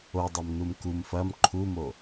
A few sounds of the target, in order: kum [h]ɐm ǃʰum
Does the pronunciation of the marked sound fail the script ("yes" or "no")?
yes